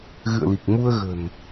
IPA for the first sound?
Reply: ɣ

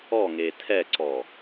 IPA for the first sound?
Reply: ɔ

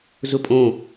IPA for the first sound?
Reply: z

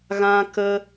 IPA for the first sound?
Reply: ɣ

